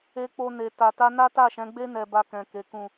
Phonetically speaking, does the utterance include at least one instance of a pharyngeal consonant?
no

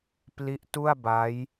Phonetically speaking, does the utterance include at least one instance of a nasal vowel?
no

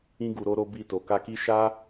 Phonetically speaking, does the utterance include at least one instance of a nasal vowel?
yes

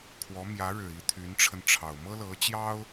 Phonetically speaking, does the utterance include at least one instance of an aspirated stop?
yes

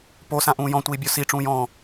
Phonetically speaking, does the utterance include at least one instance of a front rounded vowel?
no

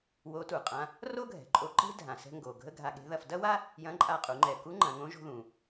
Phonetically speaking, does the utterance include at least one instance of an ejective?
yes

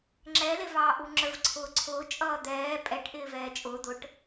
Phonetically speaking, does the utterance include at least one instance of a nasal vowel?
no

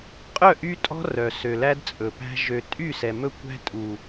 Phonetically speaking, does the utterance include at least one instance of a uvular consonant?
yes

